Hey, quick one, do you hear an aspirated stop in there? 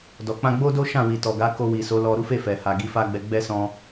no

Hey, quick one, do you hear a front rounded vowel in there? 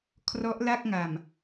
no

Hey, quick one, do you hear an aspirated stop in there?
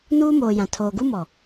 yes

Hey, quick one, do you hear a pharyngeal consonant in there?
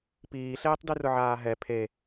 yes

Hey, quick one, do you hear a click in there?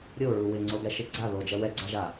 yes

